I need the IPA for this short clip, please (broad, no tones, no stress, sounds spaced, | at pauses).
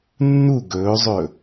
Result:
nː u ɡ ɵː zˤ ɵ